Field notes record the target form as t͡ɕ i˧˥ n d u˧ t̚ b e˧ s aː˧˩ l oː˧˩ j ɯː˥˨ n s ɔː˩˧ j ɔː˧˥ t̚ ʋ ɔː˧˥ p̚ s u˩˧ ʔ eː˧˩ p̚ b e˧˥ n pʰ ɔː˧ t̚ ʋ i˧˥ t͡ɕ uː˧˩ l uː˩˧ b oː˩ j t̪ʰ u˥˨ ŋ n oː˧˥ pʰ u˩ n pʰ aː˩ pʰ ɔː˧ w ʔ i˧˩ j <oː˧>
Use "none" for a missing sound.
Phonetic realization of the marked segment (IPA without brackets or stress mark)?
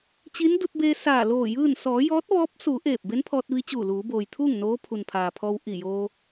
oː˧